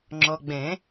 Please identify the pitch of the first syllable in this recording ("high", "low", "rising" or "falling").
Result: low